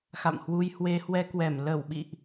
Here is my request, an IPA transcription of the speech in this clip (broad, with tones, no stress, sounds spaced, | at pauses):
x a̰˧˨ m h w u˧ j h w e˧ h w ɛ˧ k w ɛ˧˩ m l ə˧˩ w ɓ ḭ˧˨ ʔ